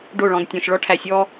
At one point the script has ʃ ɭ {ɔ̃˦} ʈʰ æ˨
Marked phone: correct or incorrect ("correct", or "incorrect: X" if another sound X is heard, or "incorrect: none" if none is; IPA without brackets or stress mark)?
incorrect: ɔ˦